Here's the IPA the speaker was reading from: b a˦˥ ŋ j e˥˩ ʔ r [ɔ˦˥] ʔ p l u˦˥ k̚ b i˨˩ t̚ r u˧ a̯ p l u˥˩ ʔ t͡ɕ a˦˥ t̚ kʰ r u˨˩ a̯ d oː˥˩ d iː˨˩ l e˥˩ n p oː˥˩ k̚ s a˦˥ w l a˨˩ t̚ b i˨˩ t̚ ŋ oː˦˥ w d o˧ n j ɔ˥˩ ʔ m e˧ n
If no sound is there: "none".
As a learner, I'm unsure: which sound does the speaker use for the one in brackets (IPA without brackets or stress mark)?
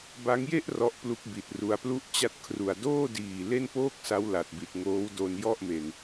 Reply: ɔ˦˥